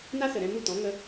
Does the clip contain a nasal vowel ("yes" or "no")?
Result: yes